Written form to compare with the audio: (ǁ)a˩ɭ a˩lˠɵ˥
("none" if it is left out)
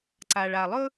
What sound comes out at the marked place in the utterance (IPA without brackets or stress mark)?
ǀ